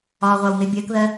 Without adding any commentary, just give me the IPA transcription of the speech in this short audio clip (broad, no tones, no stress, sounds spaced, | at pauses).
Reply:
ɒː ʁʷ ɑ w n̪ ɪ bʲ ɜ k ð ɜ